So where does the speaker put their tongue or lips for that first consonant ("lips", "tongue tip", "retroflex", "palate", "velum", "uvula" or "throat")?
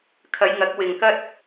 velum